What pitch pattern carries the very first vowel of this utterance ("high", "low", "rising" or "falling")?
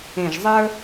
low